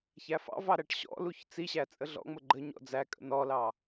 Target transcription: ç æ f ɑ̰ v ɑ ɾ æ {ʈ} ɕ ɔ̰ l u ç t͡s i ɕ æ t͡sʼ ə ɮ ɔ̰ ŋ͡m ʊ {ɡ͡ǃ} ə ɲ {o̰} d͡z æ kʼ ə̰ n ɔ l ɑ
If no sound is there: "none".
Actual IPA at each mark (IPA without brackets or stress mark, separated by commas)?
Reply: ʈ, ɡ͡ǃ, ɔ̰